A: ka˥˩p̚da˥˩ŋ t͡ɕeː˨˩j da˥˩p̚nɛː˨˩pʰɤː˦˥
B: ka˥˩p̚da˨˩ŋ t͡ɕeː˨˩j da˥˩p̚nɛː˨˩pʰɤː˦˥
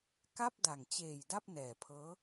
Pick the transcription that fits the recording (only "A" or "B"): B